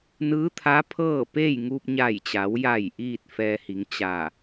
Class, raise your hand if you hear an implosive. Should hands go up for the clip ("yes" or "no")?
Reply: no